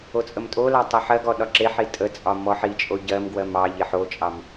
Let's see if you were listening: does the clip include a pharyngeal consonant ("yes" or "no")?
yes